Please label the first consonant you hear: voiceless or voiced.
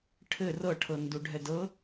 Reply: voiceless